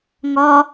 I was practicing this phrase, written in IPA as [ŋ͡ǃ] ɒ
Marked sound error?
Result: yes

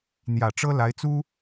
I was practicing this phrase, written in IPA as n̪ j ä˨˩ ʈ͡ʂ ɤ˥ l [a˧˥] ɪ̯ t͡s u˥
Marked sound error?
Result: no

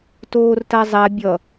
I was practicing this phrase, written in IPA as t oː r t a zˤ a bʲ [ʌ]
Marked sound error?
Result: no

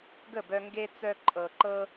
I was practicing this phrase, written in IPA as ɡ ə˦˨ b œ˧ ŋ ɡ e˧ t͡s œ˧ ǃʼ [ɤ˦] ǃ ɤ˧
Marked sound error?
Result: yes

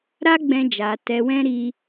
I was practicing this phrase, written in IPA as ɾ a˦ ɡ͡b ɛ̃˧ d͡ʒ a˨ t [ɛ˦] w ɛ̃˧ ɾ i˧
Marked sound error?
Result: yes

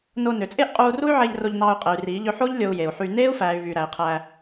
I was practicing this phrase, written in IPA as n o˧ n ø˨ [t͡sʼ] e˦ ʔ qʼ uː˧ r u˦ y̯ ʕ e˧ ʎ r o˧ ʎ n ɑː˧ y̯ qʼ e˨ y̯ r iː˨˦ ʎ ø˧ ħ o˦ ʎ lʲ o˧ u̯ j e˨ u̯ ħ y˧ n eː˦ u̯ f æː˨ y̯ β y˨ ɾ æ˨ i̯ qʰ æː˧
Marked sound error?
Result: no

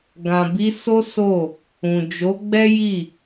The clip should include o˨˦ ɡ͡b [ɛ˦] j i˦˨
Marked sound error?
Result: no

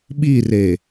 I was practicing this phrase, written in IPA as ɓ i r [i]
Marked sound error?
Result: yes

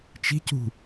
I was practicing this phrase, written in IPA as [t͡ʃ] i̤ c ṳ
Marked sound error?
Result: no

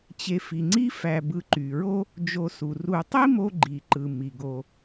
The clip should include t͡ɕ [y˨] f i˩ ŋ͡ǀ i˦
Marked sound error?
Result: yes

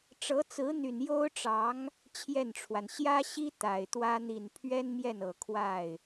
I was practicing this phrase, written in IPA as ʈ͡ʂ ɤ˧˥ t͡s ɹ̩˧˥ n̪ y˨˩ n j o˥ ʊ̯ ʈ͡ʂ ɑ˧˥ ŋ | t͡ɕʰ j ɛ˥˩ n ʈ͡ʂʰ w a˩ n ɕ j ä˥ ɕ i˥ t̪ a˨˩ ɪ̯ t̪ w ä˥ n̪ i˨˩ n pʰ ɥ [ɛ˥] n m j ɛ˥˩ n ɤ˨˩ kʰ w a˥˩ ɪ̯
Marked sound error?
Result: no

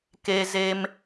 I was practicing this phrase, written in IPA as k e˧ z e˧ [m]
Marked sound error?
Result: no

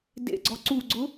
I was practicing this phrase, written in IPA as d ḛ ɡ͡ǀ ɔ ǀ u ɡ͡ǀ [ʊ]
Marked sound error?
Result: no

